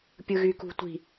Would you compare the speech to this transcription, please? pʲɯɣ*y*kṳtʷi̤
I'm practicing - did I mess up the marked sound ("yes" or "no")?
no